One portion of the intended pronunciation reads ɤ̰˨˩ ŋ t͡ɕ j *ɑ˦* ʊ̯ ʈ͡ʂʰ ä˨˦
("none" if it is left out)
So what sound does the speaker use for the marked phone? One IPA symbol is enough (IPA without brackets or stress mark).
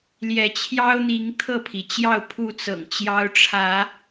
ɑ˦